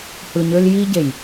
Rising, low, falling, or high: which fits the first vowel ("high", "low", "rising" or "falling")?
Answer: low